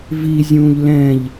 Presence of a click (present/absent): absent